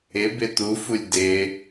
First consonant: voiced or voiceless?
voiced